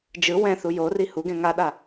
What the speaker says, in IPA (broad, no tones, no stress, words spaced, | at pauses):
d͡ʒɯ wɛ̃θu jori huɡɛ̃ ŋaɗa